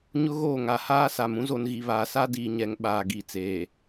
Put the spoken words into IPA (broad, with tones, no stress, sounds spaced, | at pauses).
ɲ ʊ˦ ɣ oː˦˨ ŋ a˨ h aː˦ s a˨ m ũ˦ z o˨ n ɣ i˨ β aː˨ s a˦ d iː˨ ɲ ɛ˨ ŋ ɓ aː˨ ɡ i˨ t͡s eː˨